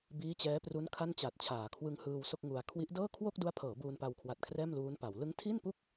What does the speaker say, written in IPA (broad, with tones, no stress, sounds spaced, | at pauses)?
b iː˦˥ t͡ɕ ɛː˦˥ p r u˦˥ n kʰ a˥˩ n t͡ɕ a˨˩ t̚ t͡ɕʰ aː˩˦ kʰ w ɯ˧ ŋ h ɯː˧ w s o˥˩ k̚ ŋ u˧ a̯ kʰ w i˦˥ ʔ d ɤː˥˩ kʰ w o˥˩ k̚ d u˦˥ a̯ pʰ ɤː˩˦ b uː˧ n p a˧ w kʰ w a˨˩ t̚ kʰ r ɛː˥˩ m l uː˦˥ n p a˩˦ w l ɯ˦˥ ŋ tʰ iː˥˩ n p u˥˩ k̚